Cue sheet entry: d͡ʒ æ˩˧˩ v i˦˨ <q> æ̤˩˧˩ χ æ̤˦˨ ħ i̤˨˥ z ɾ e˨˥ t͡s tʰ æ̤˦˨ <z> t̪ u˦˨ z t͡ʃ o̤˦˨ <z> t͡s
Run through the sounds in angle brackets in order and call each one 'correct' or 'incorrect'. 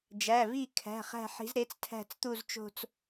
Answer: incorrect, incorrect, incorrect

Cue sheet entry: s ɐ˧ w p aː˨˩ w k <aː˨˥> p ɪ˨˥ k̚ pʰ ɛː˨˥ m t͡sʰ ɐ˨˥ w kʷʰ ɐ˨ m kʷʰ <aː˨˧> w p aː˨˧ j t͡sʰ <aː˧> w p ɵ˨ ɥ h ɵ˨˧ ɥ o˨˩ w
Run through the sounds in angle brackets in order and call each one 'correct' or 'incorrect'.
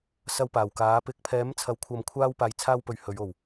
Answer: correct, incorrect, correct

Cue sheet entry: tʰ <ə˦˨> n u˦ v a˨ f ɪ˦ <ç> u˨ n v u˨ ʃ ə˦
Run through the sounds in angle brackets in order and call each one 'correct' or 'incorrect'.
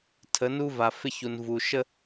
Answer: incorrect, correct

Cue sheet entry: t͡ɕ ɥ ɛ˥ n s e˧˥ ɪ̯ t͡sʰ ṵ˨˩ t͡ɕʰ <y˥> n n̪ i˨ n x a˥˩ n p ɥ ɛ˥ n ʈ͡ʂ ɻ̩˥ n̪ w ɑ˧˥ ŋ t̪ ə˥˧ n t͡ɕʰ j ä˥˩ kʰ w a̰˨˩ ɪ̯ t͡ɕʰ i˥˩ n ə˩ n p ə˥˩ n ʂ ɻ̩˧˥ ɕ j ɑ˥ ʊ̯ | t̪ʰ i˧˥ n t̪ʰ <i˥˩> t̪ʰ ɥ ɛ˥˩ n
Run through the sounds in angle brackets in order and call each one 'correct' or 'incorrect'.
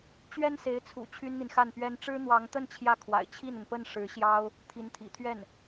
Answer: correct, incorrect

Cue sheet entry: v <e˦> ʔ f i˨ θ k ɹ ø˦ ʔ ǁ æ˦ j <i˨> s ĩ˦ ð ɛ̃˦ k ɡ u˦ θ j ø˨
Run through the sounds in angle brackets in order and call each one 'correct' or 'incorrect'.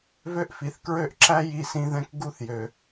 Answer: incorrect, incorrect

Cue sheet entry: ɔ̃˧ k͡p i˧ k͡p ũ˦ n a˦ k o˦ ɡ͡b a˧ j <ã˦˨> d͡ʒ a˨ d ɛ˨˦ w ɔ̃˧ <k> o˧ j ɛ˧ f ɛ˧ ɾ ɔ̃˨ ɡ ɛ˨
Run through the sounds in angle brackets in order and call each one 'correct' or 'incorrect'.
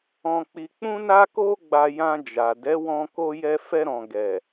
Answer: incorrect, correct

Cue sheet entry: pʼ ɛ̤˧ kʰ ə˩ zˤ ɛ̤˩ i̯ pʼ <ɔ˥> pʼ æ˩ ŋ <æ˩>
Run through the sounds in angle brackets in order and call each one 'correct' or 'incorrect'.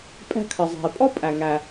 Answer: correct, correct

